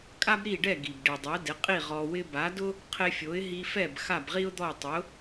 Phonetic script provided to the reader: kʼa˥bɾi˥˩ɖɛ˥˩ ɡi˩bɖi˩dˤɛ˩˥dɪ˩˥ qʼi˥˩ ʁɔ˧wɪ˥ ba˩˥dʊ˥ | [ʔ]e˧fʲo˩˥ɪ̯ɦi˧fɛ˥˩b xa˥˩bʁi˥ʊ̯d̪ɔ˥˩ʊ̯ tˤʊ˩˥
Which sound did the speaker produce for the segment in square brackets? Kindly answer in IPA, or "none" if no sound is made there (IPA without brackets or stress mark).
qʰ